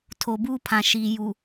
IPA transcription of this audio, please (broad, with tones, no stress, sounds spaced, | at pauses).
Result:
tʰ o˨ b uː˦ pʰ ã˨ ʃ iː˨ j u˨